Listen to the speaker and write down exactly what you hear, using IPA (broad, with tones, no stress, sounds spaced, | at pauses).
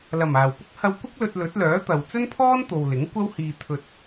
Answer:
l ɐ˨˩ m aː˨˩ w p ʊ˥ k̚ h ɐ˧ w kʷ ɐ˥ k̚ l ɵ˧ t̚ l ɵ˨˥ t̚ l œː˨˥ t̪ ɐ˨ w t͡s ɵ˥ n pʰ ɔː˥ n t̪ o˨ w l ɪ˨˥ ŋ kʷ ɐ˥ w h iː˧ t̪ʰ ɵ˧ t̚